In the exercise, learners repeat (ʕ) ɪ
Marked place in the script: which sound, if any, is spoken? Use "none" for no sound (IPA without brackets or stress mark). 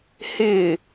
h